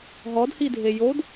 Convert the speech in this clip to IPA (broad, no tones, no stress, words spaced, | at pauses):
ɦɔdhidʱe jod